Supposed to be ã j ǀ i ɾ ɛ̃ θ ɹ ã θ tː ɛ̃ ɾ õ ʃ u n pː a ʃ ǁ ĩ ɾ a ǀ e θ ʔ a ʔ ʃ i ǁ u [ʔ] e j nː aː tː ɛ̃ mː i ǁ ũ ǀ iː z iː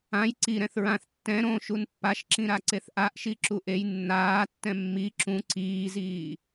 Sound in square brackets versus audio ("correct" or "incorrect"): correct